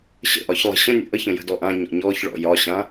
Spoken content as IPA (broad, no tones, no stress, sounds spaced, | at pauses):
ɕ ə̰ ʔ ɒ ç lˠ ə̤ ɕ ə̃ nʲ ə̰ ʔ ə ç ə̃ j ə̤ d ɔ ʔ ã ɲ ɔ̰ ɲ ɔ ç ɭ ɔ̰ j ɒ ɕ ã